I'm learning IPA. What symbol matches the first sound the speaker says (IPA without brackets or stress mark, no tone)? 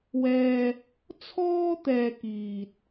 w